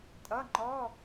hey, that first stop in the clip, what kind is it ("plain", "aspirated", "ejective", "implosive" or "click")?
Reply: ejective